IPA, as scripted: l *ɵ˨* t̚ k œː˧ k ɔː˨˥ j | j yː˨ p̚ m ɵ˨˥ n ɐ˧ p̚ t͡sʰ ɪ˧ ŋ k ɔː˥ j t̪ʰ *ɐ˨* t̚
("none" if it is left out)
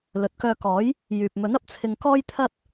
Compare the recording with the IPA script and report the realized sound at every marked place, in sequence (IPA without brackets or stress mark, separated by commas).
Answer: ɵ˨, ɐ˥